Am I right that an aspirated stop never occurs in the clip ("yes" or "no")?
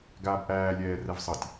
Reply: yes